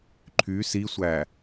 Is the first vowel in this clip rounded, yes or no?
yes